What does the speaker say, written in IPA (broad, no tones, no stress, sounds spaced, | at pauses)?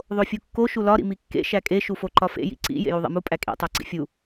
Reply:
ðˤ o fʲ u kː o ʃ u l ɒ ɾ ḭ m i kː ḛ ʃ æ kʼ e ʃ u f o ǃ ɒ f ḛ j ḭ ǀ ḭ j ḛ j u ðˤ ḛ m u pʼ æ kʼ ḭ tˤ æ ǀ ḭ fʲ u